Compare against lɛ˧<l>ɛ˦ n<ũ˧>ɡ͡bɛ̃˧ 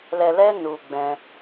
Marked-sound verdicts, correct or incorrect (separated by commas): correct, incorrect